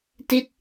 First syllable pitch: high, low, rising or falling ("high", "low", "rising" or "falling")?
falling